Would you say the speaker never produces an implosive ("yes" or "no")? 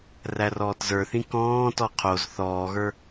yes